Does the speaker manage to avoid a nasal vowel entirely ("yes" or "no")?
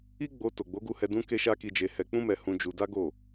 no